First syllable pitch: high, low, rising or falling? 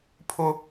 high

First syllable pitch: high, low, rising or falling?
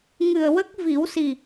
low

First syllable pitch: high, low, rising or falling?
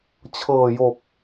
low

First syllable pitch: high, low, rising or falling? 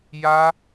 high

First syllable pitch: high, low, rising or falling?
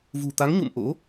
low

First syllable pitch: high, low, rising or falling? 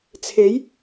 rising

